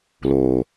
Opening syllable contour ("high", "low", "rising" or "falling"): low